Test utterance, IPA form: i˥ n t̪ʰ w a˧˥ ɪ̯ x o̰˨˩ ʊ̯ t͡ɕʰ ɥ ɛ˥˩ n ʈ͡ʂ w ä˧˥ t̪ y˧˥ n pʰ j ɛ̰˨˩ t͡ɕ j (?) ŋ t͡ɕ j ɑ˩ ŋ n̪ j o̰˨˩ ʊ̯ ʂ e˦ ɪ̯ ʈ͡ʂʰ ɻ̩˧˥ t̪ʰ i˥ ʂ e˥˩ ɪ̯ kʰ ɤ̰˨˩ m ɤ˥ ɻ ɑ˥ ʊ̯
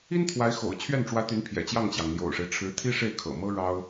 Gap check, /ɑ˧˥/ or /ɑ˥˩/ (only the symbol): ɑ˥˩